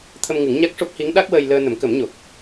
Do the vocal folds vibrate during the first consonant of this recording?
no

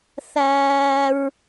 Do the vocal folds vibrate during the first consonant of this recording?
no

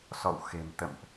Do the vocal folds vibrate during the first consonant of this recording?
no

